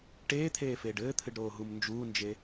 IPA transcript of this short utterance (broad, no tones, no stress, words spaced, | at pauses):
ʈeːt̪ʰeːfeːɖ ɘːt̪ʰɨɖɾoːɦum nd͡ʒuːnd͡ʒe